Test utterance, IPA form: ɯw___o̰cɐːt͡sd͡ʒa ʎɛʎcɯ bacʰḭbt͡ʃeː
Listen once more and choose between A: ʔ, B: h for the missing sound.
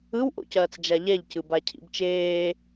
A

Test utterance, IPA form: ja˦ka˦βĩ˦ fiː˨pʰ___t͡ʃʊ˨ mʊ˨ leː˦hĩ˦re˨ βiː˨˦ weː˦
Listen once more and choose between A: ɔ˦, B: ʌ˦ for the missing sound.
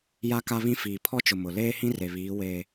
A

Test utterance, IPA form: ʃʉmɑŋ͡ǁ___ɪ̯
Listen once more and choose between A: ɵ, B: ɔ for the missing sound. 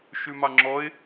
B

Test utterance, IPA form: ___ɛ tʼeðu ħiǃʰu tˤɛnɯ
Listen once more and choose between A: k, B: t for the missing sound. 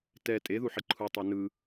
B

